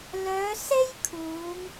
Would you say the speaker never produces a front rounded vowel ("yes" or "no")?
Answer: no